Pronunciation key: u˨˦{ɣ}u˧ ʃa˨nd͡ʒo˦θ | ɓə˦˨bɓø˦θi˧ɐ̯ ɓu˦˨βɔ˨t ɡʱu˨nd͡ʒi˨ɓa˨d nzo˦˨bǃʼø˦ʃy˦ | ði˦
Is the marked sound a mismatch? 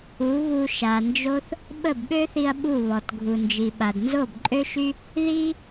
no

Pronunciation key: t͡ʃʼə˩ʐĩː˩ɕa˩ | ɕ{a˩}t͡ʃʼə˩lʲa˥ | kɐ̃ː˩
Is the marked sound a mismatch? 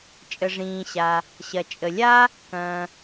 yes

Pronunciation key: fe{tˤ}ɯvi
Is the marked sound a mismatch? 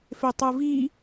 no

